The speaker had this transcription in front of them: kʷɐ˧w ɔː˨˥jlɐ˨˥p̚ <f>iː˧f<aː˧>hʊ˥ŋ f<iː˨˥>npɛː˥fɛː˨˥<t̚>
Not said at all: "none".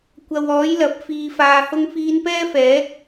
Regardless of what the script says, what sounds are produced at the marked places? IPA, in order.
f, aː˧, iː˧, k̚

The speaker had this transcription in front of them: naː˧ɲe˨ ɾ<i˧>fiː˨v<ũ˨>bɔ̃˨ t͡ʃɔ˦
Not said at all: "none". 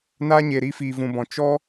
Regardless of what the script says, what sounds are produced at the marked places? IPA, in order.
i˧, ũ˨

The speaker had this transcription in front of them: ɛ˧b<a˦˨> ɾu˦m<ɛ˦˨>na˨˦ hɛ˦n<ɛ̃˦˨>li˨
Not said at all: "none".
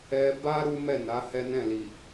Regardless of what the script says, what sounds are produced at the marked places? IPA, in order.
a˦, ɛ˦˨, ɛ̃˦˨

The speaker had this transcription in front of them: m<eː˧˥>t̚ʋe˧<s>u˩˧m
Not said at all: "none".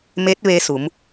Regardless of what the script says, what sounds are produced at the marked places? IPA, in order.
e˧˥, s

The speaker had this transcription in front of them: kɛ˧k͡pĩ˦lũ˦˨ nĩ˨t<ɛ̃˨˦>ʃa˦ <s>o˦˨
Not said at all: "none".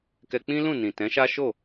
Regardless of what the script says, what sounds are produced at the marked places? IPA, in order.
ɛ̃˨˦, ʃ

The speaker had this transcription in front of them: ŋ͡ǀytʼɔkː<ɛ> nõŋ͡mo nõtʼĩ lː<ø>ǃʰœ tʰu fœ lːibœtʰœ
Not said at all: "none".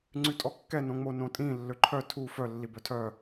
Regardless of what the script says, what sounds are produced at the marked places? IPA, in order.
ɛ, ø

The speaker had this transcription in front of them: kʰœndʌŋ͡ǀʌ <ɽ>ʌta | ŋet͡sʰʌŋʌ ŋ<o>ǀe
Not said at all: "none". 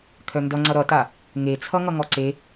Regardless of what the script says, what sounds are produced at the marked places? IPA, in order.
ɾ, ɔ

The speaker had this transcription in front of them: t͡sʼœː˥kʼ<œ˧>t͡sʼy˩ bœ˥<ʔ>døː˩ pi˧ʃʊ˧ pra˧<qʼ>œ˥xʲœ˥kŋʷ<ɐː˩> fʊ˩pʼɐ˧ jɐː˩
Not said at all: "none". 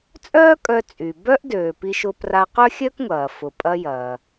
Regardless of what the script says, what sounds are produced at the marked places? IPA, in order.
œ˧, ʔ, q, ɐː˩

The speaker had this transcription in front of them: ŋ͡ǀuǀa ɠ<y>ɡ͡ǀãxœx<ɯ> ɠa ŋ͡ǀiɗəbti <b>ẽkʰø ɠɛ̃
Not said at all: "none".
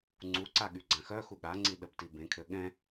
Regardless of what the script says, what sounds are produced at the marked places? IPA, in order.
y, u, b

